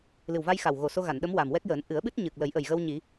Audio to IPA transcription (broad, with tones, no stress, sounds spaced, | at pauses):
l ɨ˨˩ w v a˧ j x a˨˩ w ɣ o˨˩ s o˧ ɣ a˨˩˨ n ɗ ə˧˥ m w a˨˩ m w ɛ˦˥ k̚ j əː˨˩˦ n ʔ ɨ˨˩˦ ə̯ ɓ ɨ˦˥ t̚ ɲ ɨ˨˩ k̚ l ə˨˩˦ j ʔ ə˨˩ j ɣ ə˧ w ɲ i˨˩˦